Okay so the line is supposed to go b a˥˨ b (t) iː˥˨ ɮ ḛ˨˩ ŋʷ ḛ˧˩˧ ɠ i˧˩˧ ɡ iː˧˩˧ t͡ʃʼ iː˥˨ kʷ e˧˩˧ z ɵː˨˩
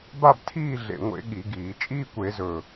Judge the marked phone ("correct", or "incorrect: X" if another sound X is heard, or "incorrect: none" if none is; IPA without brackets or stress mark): incorrect: tʰ